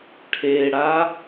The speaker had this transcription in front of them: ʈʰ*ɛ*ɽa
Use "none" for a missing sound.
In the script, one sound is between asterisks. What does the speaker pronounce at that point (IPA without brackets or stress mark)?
e